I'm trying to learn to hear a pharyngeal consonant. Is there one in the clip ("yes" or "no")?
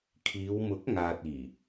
no